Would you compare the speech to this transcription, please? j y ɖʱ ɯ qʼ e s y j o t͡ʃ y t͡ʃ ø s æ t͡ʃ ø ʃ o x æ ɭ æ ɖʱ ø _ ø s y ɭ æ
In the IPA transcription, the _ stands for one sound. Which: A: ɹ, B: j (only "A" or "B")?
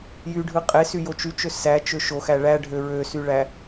A